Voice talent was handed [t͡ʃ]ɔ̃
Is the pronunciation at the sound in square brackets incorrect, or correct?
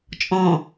incorrect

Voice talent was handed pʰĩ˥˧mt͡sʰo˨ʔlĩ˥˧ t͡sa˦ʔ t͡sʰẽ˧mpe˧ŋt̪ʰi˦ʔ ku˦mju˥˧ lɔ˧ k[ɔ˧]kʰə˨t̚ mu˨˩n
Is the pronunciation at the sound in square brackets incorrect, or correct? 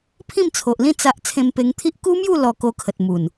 incorrect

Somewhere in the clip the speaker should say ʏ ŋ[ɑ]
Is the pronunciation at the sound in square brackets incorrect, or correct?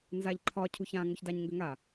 incorrect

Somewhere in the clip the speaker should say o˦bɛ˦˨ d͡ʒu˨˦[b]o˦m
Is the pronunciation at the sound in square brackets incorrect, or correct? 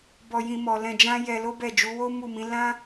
incorrect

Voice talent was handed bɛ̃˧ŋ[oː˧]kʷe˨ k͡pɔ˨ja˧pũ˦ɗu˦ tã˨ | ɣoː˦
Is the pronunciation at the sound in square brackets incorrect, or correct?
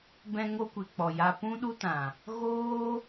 incorrect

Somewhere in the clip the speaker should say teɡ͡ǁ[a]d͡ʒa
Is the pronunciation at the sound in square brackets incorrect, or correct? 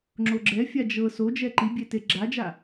correct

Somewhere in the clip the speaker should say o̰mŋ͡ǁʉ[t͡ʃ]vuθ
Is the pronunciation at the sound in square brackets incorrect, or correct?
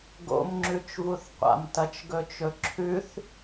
correct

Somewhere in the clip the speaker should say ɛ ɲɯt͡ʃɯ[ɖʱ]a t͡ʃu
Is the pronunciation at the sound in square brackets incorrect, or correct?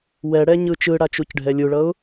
incorrect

